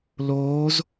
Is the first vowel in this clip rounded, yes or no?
yes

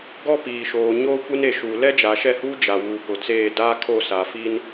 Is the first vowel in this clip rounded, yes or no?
yes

